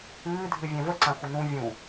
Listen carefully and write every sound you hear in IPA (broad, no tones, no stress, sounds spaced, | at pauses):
ɨː dʱ ɨ vʲ ɛ̃ v ə ǀ ã xʷ ə n ũ vʲ ũ